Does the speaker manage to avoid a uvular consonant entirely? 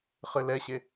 no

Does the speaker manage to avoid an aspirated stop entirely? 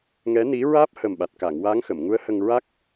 yes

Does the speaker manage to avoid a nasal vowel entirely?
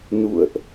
yes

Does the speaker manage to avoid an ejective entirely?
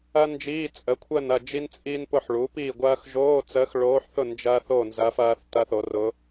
no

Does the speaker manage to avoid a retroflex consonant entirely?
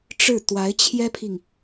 no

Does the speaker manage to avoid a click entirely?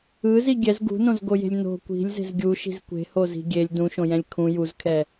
yes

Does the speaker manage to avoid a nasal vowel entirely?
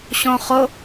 no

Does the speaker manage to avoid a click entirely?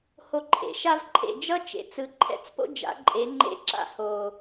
no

